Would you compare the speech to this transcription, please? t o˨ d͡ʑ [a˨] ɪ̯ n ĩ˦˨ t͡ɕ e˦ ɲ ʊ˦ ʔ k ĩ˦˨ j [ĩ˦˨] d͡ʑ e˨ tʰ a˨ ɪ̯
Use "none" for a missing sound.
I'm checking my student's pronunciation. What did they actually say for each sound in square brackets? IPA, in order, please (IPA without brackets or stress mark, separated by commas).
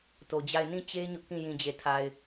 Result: a˦˨, ĩ˨